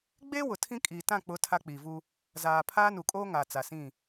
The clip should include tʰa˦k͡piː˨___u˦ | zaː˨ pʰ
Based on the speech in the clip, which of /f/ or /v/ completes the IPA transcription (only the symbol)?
v